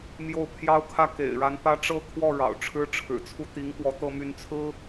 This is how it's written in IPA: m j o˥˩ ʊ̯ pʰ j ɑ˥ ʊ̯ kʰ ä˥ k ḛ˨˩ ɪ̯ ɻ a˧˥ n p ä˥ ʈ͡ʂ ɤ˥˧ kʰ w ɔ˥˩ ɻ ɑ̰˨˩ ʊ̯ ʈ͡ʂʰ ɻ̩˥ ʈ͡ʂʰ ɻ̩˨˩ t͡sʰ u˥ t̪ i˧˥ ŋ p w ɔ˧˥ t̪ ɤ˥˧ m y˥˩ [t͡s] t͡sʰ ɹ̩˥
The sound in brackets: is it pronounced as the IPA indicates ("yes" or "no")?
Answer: no